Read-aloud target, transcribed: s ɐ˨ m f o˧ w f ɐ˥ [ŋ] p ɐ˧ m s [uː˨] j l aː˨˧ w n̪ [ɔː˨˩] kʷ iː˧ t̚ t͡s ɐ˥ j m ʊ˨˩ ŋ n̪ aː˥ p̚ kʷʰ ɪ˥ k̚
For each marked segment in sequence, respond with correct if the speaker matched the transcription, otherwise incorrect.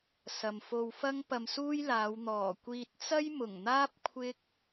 correct, incorrect: uː˥, correct

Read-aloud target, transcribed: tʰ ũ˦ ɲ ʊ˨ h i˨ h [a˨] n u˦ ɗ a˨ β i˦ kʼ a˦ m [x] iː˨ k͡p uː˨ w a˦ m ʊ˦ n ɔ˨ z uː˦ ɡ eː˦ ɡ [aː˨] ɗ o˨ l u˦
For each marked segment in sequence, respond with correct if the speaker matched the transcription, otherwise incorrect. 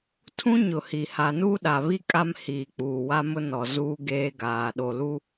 correct, incorrect: h, correct

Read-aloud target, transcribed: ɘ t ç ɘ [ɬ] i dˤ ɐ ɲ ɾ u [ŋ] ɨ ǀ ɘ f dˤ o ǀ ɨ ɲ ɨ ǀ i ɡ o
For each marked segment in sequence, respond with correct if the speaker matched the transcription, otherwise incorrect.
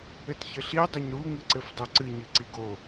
correct, correct

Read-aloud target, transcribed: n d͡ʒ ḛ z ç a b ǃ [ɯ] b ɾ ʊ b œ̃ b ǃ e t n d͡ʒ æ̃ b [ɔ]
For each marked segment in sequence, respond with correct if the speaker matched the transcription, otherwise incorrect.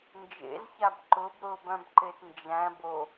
incorrect: ʊ, incorrect: o

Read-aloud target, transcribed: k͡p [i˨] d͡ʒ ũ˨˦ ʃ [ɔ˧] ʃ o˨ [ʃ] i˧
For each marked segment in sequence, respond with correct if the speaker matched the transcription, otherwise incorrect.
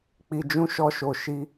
correct, correct, correct

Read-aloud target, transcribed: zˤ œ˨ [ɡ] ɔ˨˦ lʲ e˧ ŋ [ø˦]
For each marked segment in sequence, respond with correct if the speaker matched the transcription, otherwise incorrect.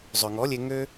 incorrect: ŋ, correct

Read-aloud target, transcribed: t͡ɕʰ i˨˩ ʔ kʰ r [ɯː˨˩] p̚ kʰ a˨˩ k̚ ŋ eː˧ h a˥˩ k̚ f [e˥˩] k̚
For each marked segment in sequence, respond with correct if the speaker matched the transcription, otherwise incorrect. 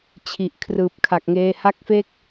correct, correct

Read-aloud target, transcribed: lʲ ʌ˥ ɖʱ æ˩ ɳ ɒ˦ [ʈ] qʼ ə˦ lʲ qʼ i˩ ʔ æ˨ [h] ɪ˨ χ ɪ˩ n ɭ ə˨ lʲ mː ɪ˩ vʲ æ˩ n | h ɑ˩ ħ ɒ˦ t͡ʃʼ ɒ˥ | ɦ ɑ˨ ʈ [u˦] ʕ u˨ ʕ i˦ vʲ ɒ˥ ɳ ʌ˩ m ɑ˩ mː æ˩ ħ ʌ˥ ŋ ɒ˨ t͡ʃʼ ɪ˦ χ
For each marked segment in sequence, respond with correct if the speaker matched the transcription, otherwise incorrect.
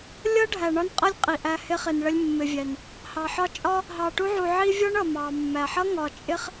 incorrect: n, correct, correct

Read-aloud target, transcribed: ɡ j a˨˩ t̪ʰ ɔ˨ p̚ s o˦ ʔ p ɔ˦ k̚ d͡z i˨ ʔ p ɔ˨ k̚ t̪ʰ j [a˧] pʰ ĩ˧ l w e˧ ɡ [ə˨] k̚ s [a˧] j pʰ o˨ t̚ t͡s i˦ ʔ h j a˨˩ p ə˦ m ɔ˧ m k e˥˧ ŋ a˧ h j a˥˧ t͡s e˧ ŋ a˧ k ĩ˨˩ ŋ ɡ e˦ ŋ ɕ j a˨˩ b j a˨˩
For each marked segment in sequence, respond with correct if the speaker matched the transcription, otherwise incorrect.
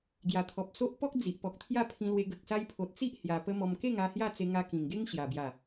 incorrect: a˥˧, correct, incorrect: a˦

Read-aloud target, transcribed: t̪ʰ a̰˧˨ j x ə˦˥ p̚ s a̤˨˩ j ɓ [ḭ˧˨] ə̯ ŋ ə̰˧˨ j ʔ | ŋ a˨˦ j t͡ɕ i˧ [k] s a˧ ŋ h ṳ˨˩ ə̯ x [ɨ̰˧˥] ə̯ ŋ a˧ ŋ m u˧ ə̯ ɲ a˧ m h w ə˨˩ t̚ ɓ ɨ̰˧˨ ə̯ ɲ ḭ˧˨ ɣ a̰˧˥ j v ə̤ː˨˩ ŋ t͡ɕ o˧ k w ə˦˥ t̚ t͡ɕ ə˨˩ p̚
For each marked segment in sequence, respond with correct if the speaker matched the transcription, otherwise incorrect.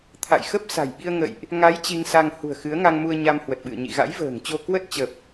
incorrect: i˧, incorrect: ŋ, incorrect: ɨ˨˦

